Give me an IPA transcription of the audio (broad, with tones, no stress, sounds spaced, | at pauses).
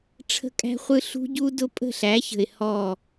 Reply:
ʈ͡ʂʰ ə̤˦ kʼ æ̤˦ χʷ ɯ˦ ɬ ṳ˦ ɟ u˦ d ʊ˦ pʼ ə̤˦˨ ɬ æ˨˦ ç ə̤˨ ɪ̯ h ɔ˦˨